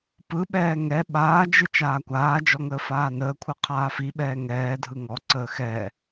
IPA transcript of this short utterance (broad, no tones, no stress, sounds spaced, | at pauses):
p ɯ ɓ ɛː ŋ ɛ ɓ aː d͡ʒ ɯ t͡ʃ aː kʷ aː d͡ʒ ɔ ŋ əː f aː n əː kʷʰ ɯ qʰ aː f i ɓ ɛː ŋ ɛː dʱ ɯ ŋ ɔ ǀ əː x ɛ